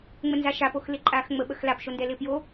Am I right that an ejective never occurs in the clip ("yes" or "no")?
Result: no